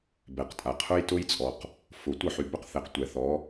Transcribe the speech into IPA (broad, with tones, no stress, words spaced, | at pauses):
bɛ˨qtʼa˨qʰʊ˦j tʊ˦jt͡sʼɔ˨q | fʊ˨ tʷə˦˨ħy˨bɵ˦qθɛ˨q tʷɛ˨θɔ˨˦